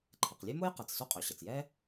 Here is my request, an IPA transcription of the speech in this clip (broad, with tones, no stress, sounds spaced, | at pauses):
ǃʰ ɘ˩ q lʲ ø˥ m o˥ j q ɛ˩ t͡s s o˥ qʼ ø˩ ɕ ɘ˩ t͡s j ɛ˥